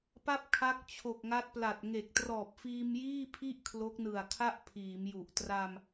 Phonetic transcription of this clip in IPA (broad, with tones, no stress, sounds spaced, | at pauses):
p a˥˩ p̚ kʰ a˦˥ k̚ t͡ɕʰ o˨˩ k̚ ŋ a˦˥ t̚ p l a˨˩ t̚ ŋ e˨˩ k̚ t r ɔː˨˩ p̚ f iː˧ m j iː˥˩ pʰ i˥˩ ʔ kʰ l o˦˥ k̚ n ɯ˨˩ a̯ kʰ a˥˩ ʔ pʰ iː˩˦ m j u˨˩ ʔ t r a˧ m